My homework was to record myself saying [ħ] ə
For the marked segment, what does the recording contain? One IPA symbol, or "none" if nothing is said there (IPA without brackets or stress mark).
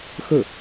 x